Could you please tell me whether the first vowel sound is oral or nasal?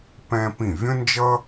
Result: nasal